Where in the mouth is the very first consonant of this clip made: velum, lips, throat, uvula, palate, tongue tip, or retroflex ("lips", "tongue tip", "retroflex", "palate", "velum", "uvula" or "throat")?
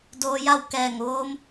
tongue tip